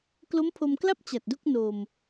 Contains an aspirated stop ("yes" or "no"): yes